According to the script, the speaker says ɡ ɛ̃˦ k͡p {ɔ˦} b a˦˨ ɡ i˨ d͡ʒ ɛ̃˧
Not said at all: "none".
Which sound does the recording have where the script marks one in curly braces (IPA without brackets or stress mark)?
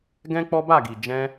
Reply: ɔ˦